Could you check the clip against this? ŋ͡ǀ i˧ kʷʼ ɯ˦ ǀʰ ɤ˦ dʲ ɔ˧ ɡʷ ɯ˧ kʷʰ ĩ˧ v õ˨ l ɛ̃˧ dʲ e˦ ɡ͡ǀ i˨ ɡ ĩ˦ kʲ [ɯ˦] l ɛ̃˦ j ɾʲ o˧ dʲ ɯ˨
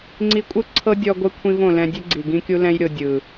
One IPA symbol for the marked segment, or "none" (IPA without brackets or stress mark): u˦